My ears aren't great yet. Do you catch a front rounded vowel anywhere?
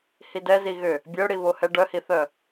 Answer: yes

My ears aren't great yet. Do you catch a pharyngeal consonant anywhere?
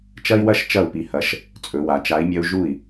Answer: no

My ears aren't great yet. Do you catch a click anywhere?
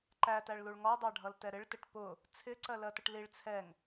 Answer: yes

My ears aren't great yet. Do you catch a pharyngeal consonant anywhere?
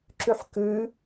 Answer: yes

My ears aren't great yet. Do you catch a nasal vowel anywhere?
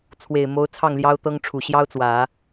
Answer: no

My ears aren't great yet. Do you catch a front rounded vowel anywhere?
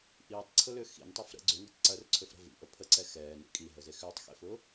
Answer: yes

